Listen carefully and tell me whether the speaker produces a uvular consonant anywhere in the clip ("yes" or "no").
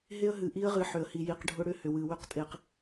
yes